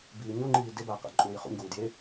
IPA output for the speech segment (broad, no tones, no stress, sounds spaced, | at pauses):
b iː ɲ o ŋ͡ǃ iː d e b a q a̰ ǃʼ uː j χ ṵ ɲ ɡ uː d j e